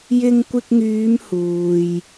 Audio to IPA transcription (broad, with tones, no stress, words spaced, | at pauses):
jɪ˧ŋkʷɪ˧k̚ŋyː˨˧m huː˨j